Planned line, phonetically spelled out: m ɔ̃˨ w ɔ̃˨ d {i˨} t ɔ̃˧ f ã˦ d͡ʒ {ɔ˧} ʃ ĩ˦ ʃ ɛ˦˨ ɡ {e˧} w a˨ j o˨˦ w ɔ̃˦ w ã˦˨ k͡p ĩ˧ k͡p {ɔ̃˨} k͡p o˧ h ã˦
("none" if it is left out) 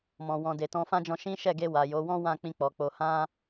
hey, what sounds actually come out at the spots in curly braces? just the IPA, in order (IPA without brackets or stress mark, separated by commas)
e˨, ɔ̃˧, e˧, ɔ˨